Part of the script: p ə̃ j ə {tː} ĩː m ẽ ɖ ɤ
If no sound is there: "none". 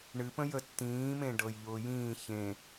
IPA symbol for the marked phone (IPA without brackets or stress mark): tː